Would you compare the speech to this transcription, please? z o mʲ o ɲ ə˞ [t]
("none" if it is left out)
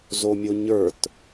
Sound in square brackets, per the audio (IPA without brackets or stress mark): t